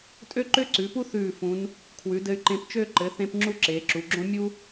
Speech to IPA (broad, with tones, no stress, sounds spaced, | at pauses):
tʼ ø˥ ǃ ø˥ ǀ ʉ˩˧ p u˥ θ ʉː˧˩ f ũ˩˧ n | kʰ w ʉ˩˧ d ɘ˧ y̯ ǃ ẽ˧ p t͡ʃ ø˥˧ ǃ ɘ˩˧ θ ẽ˧ p ŋ͡ǁ u˥ ǁ eː˩˧ ǁ u˩˧ ɡ͡ǁ õ˥ mʲ u˥